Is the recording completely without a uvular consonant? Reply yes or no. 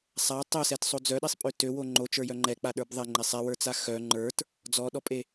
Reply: yes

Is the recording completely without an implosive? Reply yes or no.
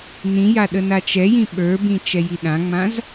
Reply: no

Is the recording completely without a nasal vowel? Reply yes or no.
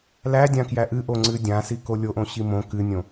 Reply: no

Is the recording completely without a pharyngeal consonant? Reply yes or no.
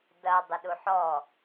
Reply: no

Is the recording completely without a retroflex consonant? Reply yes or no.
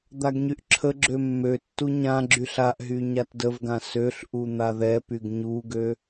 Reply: yes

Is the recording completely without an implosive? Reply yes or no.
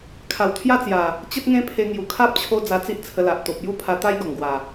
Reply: yes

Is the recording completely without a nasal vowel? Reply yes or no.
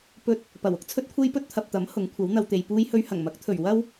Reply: yes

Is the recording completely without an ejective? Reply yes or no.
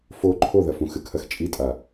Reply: no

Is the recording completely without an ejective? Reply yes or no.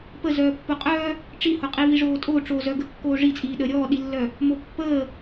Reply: no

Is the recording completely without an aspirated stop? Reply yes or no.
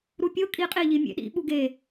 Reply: yes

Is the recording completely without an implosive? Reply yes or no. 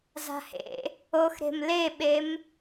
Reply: no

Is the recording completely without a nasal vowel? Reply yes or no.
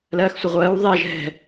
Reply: yes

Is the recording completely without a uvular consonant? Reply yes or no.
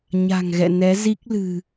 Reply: yes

